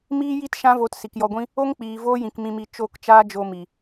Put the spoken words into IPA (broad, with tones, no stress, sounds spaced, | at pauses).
m iː˦ j i˦ t ʃ ã˦ v o˧ t s i˨ k j ɔ˧ ɡʷ ĩ˦ | o˦ ŋ k͡p iː˨ v oː˦ j ĩ˨ k m ĩ˧ m i˧ t͡ʃ o˦˨ k t͡ʃ aː˦ d͡ʒ o˧ m i˨